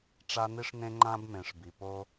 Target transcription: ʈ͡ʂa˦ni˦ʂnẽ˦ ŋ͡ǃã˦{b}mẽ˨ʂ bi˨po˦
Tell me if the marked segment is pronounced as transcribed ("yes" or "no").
yes